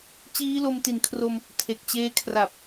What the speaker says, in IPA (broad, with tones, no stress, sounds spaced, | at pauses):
t͡ɕ iː˦˥ l o˧ m t i˨˩ n kʰ r o˧ m | tʰ e˨˩ k̚ t͡ɕ eː˧ kʰ r a˨˩ p̚